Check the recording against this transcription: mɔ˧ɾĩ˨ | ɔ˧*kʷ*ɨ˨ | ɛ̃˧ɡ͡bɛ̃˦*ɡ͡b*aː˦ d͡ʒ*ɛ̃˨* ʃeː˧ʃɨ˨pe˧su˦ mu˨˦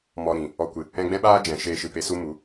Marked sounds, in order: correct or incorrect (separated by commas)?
correct, incorrect, correct